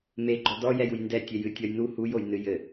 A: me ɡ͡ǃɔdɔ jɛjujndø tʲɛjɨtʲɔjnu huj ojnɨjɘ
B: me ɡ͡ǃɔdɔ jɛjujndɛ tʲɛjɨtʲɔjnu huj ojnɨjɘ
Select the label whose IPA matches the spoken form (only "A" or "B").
B